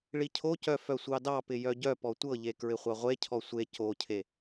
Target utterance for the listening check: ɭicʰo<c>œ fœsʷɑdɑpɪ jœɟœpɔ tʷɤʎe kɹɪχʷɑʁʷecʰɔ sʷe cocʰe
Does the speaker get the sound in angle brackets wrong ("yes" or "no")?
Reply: no